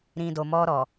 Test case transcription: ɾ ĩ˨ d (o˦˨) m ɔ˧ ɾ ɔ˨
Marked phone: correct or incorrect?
incorrect: o˨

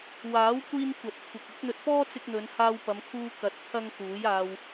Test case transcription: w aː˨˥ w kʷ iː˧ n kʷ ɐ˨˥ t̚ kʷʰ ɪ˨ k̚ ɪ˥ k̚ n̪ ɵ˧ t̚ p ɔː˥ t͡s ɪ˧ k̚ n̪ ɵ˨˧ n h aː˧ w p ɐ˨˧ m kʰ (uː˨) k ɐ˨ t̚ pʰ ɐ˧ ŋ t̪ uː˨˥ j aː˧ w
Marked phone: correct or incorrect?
incorrect: uː˧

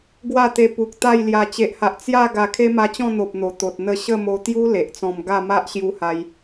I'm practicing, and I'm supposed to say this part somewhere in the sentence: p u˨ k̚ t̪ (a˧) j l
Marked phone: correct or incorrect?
incorrect: a˥˧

